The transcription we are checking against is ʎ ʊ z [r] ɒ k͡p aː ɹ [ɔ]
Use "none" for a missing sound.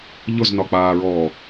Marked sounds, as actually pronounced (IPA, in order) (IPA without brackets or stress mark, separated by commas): n, ɔː